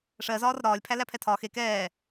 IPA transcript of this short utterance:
ʂ ɜ z ɒː r ɾ ɒː lʲ pʰ æ l æ pʰ ɛ tʰ ɒː x e k ɛː

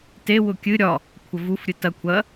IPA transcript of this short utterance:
t e w ʊ kʲ ɨ ɾʲ ɒ | kʷʰ ə v u f ɾʲ ɨ t ɐ kʷʰ ɐ

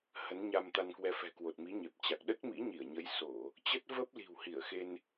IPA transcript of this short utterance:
h ə˨˦ n ɲ a˧ m t̪ a˧ n k w ɛ˧ f ɛ̤˨˩ k w o˨˩ t̚ m i˨˦ ɲ e˨˩ p̚ t͡ɕ a˨˩ k̚ ɗ ə˦˥ t̚ m ḭ˧˥ ɲ i˧˩ ə̯ ɲ ə˨˦ j s o˧˩˨ | t͡ɕ ə˦˥ t̚ v ə˦˥ p̚ l i̤˨˩ w h i˧˩ ə̯ x e˧ n

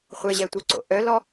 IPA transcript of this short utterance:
χʷ e ʑ ɛ tʷ ɯ ǀ o̰ ʔ œ l ɔ

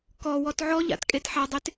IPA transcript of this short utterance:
k ɔ w ɔ t ʕ ɔ ʎ a̰ t kʼ e t ħ a dˤ e t

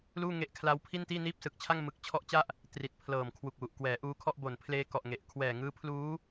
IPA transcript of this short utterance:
l uː˥˩ ŋ e˦˥ ʔ kʰ l a˦˥ w pʰ i˥˩ n t iː˥˩ n iː˥˩ p̚ s ɯ˨˩ k̚ t͡ɕʰ a˥˩ ŋ m ɯ˦˥ k̚ t͡ɕʰ ɔ˦˥ ʔ t͡ɕ a˥˩ ʔ | t r i˨˩ t̚ pʰ l ɤː˨˩ m kʰ w u˨˩ k̚ w u˨˩ ʔ k w ɛː˩˦ ʔ uː˧ kʰ ɔ˥˩ ʔ b o˨˩ n pʰ l eː˧ k ɔ˨˩ ʔ ŋ e˨˩ ʔ kʰ w ɛː˨˩ ŋ ɯː˦˥ pʰ l uː˦˥

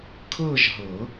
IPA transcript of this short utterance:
kʰ ɤː˥˧ ʒ ɦ ɤ˨˩˦

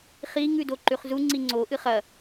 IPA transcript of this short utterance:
χ i ŋ ʉ d o ǃ ʉ χ z u ŋ͡ǀ i ŋ͡ǀ o ʔ ɨ χ ɐ

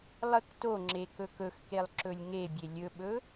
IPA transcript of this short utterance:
lˠ ə k t o ŋ͡ǁ e k ɵ k ɵ x k e lˠ ǁ ɵ lʲ ŋ e bʲ e lʲ ɵ ɓ ɵ

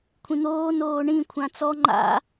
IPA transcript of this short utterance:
kʷʰ ĩ n̪ oː n oː ɳ ĩ kʷʰ ã t͡s ɔ ŋ͡ǃ a̰

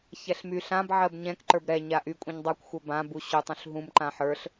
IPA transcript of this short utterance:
ç ɛ ɬ m y ɬ ã b ʕ ɜ b ɲ ɛ̃ k ǃ ə˞ b ɾ ɛ ɲ a ʔ y kʷʼ ɛ̃ ɲ dˤ ə˞ kʷ xʷ ɜ b ã b u ɕ u tˤ ũ ɬ ɦ ũ m ǃ ã ħ ə˞ ɬ

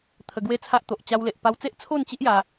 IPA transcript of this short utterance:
t̪ʰ ə˧ ɡ w e˥˧ t͡sʰ a˦ ʔ t̪ o˨ ʔ t͡ɕ a˧ w l e˨ ʔ p a˧ w t͡s e˦ ʔ t͡sʰ o˥˧ n t͡ɕ i˦ ʔ j a˧

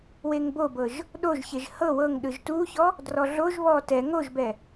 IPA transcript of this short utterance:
w e ŋ b o b ɤ ʒ | ɗ o ʒ ç e ʒ h ɤ w ɤ ŋ ɗ ɯ ʒ t u ç ɔ | d r ɔ ɮ o ʒ β ɔ t ɛ ŋ o ʒ b ɛ

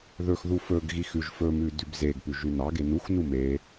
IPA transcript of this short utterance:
ð ɵ x ð u f ɵ ɡ ɣ i x ʉ ʒ f ɵ m ʉ d ʉ b z e ɡ p ʉ ʒ ʉ n ɑ ɡ e n u x n u m e

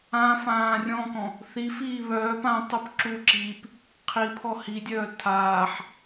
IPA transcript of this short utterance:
ã f ãː rʲ ɔ̃ k ɔ̃ | θ i f iː β œː p ã tˤ œ p ǁ u ǁ iː p | qʰ i pʰ ɔ h i dʲ œː tʰ aː ħ

